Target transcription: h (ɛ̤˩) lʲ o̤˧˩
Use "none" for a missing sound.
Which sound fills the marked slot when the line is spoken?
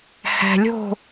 ɛ̤˩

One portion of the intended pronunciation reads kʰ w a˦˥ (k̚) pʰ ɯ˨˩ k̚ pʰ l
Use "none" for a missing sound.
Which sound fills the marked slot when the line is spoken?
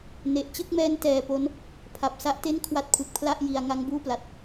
t̚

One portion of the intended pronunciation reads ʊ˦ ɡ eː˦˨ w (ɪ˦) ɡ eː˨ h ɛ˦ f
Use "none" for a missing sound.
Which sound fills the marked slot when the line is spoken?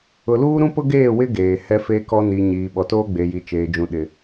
ɪ˦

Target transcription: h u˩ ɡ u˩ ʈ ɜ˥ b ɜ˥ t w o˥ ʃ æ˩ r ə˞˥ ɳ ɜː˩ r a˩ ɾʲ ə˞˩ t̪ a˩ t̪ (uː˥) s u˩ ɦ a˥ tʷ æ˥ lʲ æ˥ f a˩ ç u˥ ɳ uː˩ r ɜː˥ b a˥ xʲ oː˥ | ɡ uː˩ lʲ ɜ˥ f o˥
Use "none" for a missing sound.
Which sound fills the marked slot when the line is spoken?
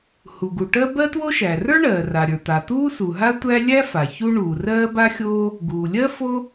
uː˥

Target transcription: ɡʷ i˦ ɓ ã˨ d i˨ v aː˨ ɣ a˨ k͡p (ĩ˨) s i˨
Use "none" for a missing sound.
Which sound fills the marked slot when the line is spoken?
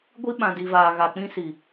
ĩ˦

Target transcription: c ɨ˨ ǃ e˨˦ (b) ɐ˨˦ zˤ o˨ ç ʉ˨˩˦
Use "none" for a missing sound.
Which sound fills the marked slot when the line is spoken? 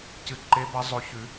b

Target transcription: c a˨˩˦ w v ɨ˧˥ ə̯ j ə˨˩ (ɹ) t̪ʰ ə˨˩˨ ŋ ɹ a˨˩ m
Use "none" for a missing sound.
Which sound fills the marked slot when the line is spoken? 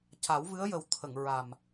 w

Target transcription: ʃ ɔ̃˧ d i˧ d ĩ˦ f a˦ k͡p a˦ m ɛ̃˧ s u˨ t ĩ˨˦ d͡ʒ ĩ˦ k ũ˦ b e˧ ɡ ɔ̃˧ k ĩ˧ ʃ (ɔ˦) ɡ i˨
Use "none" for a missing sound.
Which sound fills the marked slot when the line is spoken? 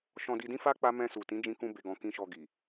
ɔ˧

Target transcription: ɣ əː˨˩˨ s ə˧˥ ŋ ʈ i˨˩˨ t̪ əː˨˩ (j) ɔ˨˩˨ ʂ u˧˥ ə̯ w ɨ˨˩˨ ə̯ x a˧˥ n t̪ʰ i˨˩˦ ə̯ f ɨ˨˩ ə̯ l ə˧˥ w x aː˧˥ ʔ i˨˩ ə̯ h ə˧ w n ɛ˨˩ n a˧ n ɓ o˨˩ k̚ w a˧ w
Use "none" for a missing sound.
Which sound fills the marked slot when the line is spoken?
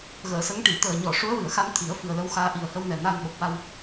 ɲ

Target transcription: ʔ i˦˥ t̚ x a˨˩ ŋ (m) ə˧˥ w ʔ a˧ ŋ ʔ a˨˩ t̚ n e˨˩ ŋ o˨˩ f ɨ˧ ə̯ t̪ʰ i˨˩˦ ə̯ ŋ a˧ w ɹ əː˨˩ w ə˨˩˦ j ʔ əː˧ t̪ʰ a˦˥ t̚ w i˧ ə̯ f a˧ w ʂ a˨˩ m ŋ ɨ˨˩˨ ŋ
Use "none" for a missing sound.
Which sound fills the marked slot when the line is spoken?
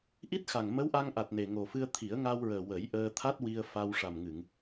m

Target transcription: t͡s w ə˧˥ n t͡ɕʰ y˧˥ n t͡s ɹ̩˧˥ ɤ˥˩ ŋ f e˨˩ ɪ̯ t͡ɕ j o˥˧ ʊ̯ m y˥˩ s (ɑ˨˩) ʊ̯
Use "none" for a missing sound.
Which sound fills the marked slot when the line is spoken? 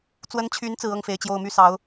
ɑ˧˥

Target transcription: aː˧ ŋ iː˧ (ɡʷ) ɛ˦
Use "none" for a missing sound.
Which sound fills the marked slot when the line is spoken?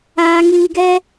ɡ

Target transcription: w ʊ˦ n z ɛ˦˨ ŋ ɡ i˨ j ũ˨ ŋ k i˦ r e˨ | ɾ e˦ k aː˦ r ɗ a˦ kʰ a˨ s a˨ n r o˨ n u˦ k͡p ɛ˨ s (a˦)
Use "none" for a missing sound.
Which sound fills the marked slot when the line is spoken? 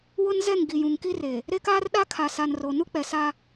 a˦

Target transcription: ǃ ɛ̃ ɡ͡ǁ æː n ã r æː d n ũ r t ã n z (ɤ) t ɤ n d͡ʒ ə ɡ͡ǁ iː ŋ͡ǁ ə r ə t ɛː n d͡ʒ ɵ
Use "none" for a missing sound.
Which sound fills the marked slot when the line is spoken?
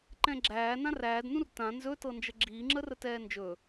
ɵ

